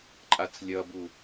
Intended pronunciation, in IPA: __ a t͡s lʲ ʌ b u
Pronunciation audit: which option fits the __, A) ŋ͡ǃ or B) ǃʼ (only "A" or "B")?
B